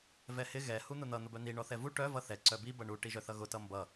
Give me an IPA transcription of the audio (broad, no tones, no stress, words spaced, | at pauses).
vɛhɪ ɣɛ hun̪ʊn̪ʌ n̪ʊbœn̪i ɳɔθɛvu ʈœ vʌθɛ ǀœbi bʌɳu ʈiʒœθʌɣʊ tʌmbʌ